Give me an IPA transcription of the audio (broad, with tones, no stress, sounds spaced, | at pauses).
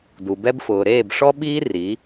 d u˨ b ɛ˦ b f ʊː˨ ɾ eː˦˨ b ʂ ɔ˦ ɓ iː˦ r i˨˦